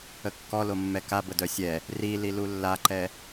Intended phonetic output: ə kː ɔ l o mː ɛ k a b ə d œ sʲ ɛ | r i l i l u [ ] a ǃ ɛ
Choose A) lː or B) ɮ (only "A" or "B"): A